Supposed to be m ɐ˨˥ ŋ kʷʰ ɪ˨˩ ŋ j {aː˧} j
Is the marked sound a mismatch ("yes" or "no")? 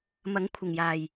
yes